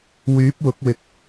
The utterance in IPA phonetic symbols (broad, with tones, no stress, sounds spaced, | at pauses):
w yː˨˥ p̚ w ʊ˨˥ k̚ w ɪ˨ k̚